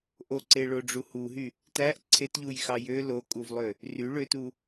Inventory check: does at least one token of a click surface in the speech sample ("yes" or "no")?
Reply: yes